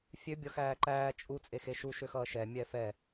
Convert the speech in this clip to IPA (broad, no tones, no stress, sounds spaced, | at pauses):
fʲ ø bʲ ʌ x æː ǃ æː t͡ʃʼ u t͡sʼ e x e ʃ u ʃ ø x ʌː ʃ ɛ mʲ ɛ f ɛ